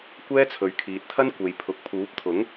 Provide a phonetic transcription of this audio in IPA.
kʷ ɛː˥ t͡sʰ ɵ˨ ɥ kʰ iː˨ t̚ t̪ʰ ɐ˥ n kʷ e˨ j pʰ ʊ˨ k̚ pʰ uː˨˥ p̚ t̪ʰ ʊ˨˥ ŋ

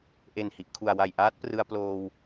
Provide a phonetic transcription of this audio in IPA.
ʔ e˨˩ n h i˨˩ ʔ kʰ u˨˩ a̯ w a˨˩ j ʔ aː˦˥ t̚ p r ɯ˧ a̯ p l oː˧ w

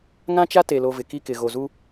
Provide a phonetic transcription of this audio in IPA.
ŋ ã˦ t͡ʃ a˦ t e˨ l o˨ v ɪ˨ k i˦ k ɪ˨ ɣ o˨ z u˦

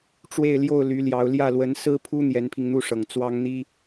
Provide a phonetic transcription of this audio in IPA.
ʈ͡ʂ w e˥˧ ɪ̯ l j o˥˩ ʊ̯ l y˧˥ l j ɑ˧˥ ʊ̯ l j ä˥˩ l w ə˧˥ n s ɹ̩˥ pʰ u˥ n̪ j ɛ˧˥ n pʰ i˧ ŋ n̪ u˥˩ ʂ ɤ˨˩ ŋ t͡s w ɑ˥ ŋ n̪ i˥

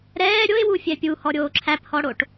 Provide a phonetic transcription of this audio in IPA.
ɾ ɛː ɾʲ o ɪ̯ w u fʲ ɛ pʲ u h ɔ ɾʲ oː ǁʰ æ p h ɔ ɽ o ʈ

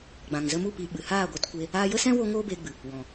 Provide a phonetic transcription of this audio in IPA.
ɡ͡b ã˨ ŋ z ə˧ m u˦˨ p i˧ ɓ ɨ˨ h aː˦˨ ɡʷ ɛ˧ t kʷ e˧ | aː˧ j ə˦ s ɛ̃˦ w o˦ ŋ oː˦ b eː˧ ɡ͡b ɨ˨ | w ɔ̃˨

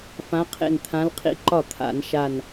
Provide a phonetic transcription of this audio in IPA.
f ã˨˦ qʰ ḛ˧˩ n t̪ʰ ã˨˦ l qʰ ḭ˨˦ ǃ ɒ˥˩ t̪ʰ a̰˧˩˧ n ʃ a˧˩ n

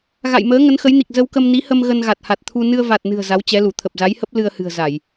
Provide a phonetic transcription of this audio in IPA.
ɣ a̰˧˨ j m əː˨˦ ŋ ə˨˦ n x ə˨˦ j n i˨˩ k̚ z ə˧ w k ə˧ m n i˨˦ h ə˧ m ɣ ə˧ n ɣ a˨˩ t̚ h a˨˩ t̚ t̪ʰ u˧ n ɨ˧ ə̯ v a˨˩ t̚ n ɨ̤˨˩ ə̯ z a˨˦ w t͡ɕ ɛ˨˦ l u˧˩ t̪ʰ ə˨˩ p̚ z a˨˦ j h ə˦˥ p̚ l ɨ˧ ə̯ h ɨ̤˨˩ ə̯ z a˧˩˨ j

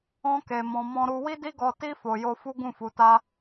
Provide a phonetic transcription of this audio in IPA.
ɔ̃˧ k e˨ m ɔ̃˧ m ɔ̃˦ ɾ u˦ w i˦ d i˦ ɡ ɔ˧ t i˦ f o˧ j o˦ f u˦ ɡ ũ˦˨ f u˨˦ t a˦

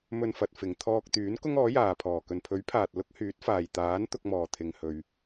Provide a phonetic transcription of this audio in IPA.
m ɵ˧ n f ɐ˨ t̚ f ɪ˨ ŋ t̪ʰ ɔː˧ k̚ t̪ yː˨˥ n k ʊ˥ ŋ ɔː˨˥ j aː˨ pʰ ɔː˨˩ k ɵ˨ n pʰ ɵ˨˥ ɥ pʰ aː˨ t̚ l ʊ˥ k̚ h yː˨˥ t̚ f aː˨ j t̪ aː˨˥ n t̪ ʊ˧ k̚ m ɔː˨ t̪ʰ ɪ˨ ŋ h ɵ˨ ɥ

